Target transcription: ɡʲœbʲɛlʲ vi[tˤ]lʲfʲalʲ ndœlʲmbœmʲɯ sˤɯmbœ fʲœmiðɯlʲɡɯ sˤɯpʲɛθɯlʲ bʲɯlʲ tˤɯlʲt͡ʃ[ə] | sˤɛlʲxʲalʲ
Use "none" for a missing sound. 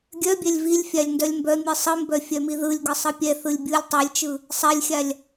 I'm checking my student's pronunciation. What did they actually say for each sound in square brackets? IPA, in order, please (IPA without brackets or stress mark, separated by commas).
none, ɯ